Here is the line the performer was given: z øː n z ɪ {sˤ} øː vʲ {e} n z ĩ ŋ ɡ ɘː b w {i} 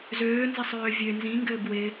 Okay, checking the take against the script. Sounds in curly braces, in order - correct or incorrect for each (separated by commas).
correct, incorrect, incorrect